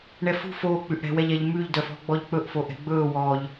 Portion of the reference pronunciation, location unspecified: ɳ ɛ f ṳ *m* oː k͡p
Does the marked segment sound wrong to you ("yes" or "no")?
yes